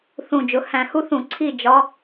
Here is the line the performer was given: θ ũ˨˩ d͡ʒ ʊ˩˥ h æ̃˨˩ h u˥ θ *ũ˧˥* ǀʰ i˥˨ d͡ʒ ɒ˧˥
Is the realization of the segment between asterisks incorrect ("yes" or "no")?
yes